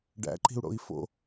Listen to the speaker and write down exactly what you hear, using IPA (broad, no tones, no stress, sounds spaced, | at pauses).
ɖ æ̰ ǃ i̤ u̯ ɽ o̰ i̯ f o̰